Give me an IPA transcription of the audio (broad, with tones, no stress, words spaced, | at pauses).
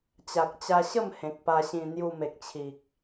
t͡ɕa˨k̚t͡ɕa˧ɕə˥˧m hẽ˨k̚pa˧ɕĩ˧ n̪ju˧me˨k̚t͡ɕʰi˨k̚